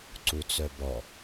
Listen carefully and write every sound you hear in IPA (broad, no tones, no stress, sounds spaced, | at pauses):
ǀ u t͡s œ b ɔ